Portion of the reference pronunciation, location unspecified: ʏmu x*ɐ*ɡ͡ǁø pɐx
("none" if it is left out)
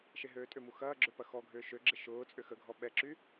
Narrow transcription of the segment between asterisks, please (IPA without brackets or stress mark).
ɐː